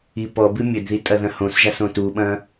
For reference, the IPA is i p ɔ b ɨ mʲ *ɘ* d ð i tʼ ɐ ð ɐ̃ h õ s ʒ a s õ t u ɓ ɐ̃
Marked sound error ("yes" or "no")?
no